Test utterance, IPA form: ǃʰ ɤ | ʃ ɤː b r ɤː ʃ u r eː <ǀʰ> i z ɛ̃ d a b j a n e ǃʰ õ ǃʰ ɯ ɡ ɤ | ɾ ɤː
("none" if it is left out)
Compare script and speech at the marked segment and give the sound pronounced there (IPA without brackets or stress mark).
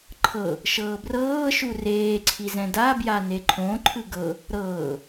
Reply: ǀʰ